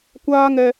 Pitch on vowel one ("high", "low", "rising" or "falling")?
high